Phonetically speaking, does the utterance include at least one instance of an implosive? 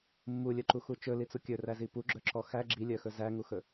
no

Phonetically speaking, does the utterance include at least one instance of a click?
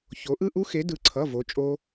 yes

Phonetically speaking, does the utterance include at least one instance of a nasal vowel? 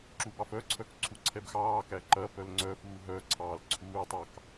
no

